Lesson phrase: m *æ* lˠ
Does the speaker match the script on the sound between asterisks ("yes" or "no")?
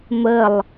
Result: no